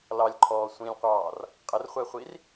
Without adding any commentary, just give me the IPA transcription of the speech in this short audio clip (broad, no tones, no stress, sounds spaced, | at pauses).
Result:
l ɑ lʲ ǃʰ ɔː sʷ ĩ lʲ qʷ ɑː r | qʼ ə r χʷ ɛ χʷ i r